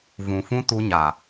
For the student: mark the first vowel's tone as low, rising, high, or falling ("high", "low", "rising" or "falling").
low